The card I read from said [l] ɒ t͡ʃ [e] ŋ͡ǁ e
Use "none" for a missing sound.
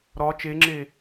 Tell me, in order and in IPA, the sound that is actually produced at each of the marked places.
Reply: ɾ, e

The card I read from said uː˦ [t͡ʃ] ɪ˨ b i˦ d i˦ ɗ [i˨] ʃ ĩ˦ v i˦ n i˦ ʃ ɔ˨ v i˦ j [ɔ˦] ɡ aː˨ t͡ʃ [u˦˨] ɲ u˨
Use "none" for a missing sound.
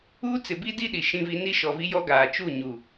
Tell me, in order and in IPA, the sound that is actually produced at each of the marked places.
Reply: t͡s, i˨, ɔ˦, u˦˨

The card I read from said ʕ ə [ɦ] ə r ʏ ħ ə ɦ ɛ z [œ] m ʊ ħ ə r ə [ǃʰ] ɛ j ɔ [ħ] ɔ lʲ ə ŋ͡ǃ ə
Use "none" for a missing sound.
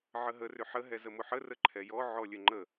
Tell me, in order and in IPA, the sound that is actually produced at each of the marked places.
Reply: ɦ, ə, ǃʰ, ʕ

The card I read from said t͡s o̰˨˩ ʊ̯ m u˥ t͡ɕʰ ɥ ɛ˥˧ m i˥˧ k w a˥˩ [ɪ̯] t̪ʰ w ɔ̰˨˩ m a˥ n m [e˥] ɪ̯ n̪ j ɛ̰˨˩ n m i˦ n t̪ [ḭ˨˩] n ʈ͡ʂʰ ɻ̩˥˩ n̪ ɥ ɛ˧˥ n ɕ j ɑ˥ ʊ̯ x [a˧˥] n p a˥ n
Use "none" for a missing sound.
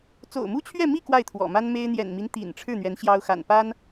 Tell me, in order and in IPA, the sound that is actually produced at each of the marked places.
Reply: ɪ̯, e˥, ḭ˨˩, a̰˨˩

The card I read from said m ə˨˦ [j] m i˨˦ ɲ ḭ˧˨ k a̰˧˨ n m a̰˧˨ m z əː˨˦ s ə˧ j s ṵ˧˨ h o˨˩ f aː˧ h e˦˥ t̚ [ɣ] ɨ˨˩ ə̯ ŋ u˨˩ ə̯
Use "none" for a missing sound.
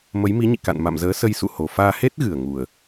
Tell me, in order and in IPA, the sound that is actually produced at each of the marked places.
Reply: j, ɣ

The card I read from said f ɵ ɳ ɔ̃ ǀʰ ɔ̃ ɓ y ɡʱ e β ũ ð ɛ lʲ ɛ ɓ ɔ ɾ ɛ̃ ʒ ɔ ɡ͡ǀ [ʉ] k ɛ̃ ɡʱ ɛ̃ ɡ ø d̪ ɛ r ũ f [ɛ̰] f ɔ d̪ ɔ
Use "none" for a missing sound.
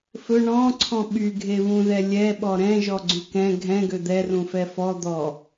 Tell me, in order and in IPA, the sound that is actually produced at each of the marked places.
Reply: ʉ, ɛ

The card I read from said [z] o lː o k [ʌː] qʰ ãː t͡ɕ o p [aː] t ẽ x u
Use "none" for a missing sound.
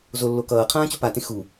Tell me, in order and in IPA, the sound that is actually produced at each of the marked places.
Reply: z, ʌː, a

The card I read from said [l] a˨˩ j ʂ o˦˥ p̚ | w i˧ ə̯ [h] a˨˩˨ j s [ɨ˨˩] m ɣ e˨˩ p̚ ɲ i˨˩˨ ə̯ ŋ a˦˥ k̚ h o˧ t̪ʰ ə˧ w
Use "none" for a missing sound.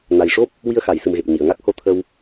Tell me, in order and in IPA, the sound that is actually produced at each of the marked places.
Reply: n, x, ɨ˨˩

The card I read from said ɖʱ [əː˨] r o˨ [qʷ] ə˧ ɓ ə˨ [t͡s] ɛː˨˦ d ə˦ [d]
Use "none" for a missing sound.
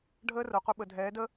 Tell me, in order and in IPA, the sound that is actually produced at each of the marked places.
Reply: əː˦, qʷ, dʱ, none

